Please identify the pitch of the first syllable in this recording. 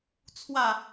low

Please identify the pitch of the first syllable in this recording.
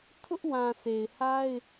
high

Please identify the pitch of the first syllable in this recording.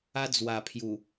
high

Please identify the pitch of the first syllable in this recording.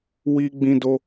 high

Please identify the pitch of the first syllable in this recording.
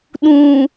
low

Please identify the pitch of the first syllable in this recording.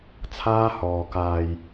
high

